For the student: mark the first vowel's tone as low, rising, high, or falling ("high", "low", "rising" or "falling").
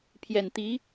low